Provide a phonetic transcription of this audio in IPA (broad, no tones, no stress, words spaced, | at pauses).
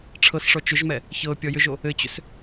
ʈ͡ʂʰɤsʂɔ t͡ʃʏʒmɛ | çɤ pʲɔjʏʒo | ɘt͡ɕʏs